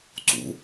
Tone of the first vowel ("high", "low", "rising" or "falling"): rising